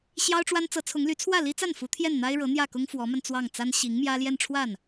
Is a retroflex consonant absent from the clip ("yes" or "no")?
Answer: no